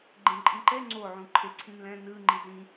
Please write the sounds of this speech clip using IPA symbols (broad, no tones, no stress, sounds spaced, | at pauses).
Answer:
ɡ͡ǃ ẽ ǃʼ ĩ ǃ ɛ ŋ͡ǀ o ʕ ũ ǃʰ e ǀʰ ĩ n l ɛ̃ n ɯ ŋ͡ǃ i z ĩ